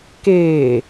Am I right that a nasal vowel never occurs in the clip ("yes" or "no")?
yes